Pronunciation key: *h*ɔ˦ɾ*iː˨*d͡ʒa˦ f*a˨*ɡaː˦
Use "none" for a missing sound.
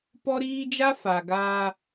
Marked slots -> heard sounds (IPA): p, iː˦, a˨

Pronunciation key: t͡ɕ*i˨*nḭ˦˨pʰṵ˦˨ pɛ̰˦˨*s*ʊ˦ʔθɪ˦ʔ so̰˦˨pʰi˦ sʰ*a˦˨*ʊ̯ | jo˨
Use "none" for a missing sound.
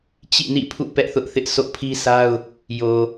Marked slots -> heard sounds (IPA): ḭ˦˨, θ, a˦

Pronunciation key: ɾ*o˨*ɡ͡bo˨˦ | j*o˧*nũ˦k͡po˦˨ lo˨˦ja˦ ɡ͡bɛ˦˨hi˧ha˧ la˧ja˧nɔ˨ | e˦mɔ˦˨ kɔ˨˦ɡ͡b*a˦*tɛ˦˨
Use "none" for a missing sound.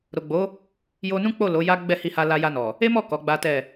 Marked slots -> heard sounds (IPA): o˨, o˧, a˦

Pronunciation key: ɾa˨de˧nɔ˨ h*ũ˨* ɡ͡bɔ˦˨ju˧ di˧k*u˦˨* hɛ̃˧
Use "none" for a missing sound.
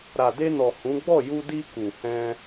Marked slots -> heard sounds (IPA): ũ˨˦, u˨

